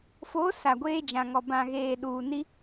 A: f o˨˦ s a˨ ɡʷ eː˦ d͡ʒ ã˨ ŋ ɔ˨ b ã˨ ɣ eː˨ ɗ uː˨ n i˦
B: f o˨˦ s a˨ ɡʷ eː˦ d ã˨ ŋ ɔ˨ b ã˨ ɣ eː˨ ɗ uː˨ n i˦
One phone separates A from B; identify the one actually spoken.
A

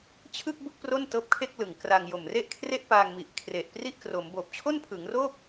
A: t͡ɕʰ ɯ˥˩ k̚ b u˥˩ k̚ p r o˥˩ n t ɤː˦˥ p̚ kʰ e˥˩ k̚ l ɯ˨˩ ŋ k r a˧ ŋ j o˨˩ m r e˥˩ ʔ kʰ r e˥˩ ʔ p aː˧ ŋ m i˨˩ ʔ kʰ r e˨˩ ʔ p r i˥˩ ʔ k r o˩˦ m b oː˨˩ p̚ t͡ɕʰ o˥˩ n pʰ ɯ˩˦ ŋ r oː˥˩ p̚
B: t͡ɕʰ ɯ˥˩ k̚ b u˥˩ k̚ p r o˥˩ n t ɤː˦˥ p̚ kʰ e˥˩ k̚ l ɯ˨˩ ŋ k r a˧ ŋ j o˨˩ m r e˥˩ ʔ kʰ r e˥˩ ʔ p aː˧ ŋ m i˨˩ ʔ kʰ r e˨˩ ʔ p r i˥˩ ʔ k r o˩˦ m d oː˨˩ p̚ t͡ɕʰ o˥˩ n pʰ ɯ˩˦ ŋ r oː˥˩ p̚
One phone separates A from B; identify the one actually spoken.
A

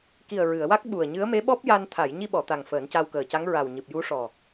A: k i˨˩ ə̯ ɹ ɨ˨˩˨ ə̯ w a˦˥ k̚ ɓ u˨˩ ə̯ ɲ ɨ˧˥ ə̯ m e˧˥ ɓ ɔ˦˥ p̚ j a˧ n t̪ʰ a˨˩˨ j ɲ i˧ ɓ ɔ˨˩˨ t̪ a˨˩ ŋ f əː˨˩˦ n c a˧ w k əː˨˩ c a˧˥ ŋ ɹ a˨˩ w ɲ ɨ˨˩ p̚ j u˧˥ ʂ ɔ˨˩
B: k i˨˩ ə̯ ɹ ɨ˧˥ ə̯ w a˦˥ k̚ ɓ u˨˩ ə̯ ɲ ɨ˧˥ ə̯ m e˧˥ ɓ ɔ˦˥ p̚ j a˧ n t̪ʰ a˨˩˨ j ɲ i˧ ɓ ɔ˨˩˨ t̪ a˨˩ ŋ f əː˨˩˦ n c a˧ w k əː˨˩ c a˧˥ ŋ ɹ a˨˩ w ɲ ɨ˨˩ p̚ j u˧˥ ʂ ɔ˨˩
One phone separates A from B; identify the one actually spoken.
A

